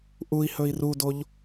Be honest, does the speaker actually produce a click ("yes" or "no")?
no